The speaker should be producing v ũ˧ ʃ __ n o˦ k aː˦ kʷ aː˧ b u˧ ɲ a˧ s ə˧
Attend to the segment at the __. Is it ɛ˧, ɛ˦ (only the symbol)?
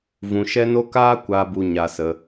ɛ˦